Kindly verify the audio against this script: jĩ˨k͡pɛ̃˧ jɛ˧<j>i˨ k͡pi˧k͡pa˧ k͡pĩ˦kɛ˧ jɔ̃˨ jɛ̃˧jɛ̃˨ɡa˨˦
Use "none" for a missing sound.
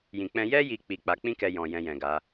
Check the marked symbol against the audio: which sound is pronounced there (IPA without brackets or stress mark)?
j